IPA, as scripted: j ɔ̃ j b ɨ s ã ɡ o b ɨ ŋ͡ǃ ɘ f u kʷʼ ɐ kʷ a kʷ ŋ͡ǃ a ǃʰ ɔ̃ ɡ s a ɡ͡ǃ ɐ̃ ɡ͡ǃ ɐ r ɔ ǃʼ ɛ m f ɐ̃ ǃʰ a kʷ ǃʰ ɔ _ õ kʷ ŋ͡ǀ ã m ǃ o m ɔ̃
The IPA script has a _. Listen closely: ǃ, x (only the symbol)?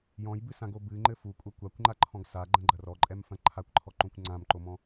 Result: ǃ